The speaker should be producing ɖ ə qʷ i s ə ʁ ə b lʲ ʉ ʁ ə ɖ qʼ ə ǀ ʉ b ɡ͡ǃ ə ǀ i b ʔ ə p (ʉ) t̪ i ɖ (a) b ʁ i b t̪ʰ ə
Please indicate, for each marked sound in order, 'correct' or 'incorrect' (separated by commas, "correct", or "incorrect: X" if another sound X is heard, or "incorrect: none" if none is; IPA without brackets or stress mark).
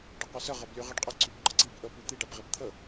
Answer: correct, correct